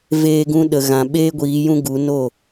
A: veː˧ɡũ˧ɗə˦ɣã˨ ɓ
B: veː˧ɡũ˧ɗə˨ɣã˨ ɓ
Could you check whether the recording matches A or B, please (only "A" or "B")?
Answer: B